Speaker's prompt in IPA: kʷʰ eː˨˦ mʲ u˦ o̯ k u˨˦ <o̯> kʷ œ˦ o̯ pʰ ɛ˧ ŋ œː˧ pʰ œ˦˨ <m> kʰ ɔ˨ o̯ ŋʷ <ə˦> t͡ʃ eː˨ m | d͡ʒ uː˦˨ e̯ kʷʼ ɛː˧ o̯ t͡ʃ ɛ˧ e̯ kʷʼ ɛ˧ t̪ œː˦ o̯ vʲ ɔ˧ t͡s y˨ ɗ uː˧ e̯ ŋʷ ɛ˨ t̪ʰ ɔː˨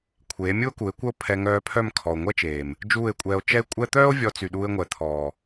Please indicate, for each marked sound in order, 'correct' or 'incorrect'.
incorrect: e̯, correct, incorrect: ɛ˦

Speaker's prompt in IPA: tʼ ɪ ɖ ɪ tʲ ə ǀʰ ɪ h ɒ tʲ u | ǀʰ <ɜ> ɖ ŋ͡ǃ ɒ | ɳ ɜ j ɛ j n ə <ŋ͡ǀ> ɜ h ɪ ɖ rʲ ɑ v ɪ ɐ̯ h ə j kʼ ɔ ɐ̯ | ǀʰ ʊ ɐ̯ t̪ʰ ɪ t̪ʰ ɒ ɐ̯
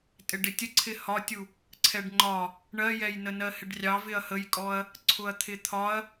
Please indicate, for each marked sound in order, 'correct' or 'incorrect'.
incorrect: ɛ, incorrect: n

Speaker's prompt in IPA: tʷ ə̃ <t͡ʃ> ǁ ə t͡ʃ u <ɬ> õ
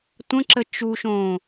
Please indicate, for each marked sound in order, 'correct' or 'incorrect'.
incorrect: none, incorrect: ʃ

